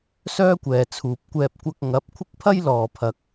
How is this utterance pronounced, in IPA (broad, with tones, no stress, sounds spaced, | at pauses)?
s œː˥ kʷ ɛː˨ t͡sʰ uː˨ p̚ kʷ ɛː˧ p̚ kʷ ɐ˧ k̚ ŋ ɐ˨˥ p̚ kʷʰ ɪ˥ k̚ pʰ ɐ˥ j l ɔː˨ pʰ ɐ˨ k̚